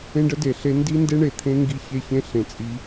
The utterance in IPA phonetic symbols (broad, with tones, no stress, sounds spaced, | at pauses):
ẽ˦ ɖ ə˦ d e˨ ɬ e˦ n d i˦ n d e˦ ɳ e˨ t̪ʰ ẽ˦ ŋ ɡ i˦ ç e˦ ç ẽ˦ ɬ ẽ˨ t͡sʼ i˦